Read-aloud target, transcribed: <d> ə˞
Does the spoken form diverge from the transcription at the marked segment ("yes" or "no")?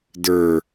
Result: no